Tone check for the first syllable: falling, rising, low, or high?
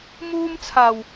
high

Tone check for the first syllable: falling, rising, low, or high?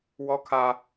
high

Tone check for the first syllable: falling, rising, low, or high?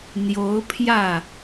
rising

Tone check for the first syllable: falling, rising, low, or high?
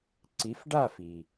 rising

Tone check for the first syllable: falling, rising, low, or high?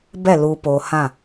falling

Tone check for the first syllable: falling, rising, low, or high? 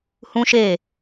high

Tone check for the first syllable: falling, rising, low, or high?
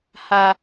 high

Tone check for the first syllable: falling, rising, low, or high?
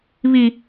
high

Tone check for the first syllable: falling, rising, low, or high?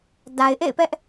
low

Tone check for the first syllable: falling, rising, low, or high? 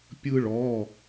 high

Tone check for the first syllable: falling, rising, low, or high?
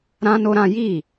high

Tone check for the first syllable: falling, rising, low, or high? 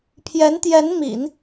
rising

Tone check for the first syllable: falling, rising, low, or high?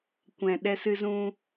low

